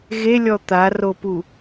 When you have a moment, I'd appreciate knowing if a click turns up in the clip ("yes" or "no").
no